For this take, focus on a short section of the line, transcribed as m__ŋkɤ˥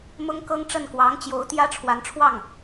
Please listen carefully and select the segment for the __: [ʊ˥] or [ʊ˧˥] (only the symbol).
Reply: ʊ˥